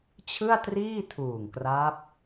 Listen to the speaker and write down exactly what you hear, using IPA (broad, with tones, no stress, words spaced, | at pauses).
t͡ɕʰɯ˥˩a̯triː˥˩tʰuː˨˩ŋkra˦˥p̚